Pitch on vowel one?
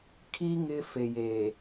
high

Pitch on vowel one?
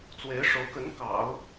rising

